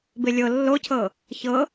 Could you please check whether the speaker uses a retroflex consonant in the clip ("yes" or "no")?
no